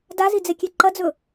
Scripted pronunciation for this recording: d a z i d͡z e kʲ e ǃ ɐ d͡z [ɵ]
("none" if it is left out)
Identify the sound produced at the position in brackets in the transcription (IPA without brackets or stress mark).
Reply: ɵ